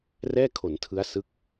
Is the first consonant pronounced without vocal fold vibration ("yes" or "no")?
no